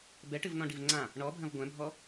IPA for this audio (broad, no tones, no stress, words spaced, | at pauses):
bɛʈɨvnɔ̃ ɖivŋ͡ǀã | ɳɔbʱɐ̃v ɡʷɛ̃bʱɔ